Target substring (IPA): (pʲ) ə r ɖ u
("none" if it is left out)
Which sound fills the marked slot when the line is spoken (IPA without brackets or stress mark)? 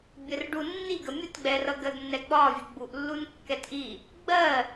bʲ